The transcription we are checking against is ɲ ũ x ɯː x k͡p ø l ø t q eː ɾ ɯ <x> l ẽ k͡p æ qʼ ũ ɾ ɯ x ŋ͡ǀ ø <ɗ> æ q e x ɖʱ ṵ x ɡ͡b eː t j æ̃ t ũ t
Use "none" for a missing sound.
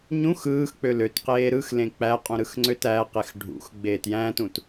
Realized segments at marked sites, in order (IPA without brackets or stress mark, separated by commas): x, t